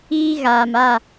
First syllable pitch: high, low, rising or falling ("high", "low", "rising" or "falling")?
high